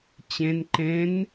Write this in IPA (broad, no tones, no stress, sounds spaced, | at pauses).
t͡ɕ ẽ n ǃ ẽ n